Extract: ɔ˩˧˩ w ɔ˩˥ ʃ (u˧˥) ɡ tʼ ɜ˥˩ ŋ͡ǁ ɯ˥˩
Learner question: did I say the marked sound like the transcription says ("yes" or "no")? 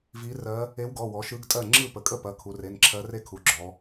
no